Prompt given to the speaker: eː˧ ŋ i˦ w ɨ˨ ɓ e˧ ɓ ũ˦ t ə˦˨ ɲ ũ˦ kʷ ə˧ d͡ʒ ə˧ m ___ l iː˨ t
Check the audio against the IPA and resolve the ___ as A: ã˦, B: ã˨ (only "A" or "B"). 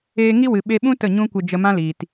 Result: A